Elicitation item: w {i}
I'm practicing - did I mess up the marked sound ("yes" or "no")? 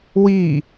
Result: no